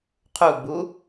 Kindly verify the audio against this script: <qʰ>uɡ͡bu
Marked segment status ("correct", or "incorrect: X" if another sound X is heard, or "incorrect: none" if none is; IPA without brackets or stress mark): correct